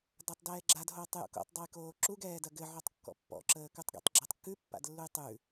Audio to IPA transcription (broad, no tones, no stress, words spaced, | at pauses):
datˤdɛːɡ͡ǁad ɦoːtˤjo̰ko̰tˤ dˤɐjkoːǁuɡ ɛːdɐɡɘ ʕɔtˤkːɔ̰pːɔ̰ ǁəːkʉtˤɡɛ̰tˤ ɡ͡ǁətˤkːʉ pːa̰dlːujtˤʉ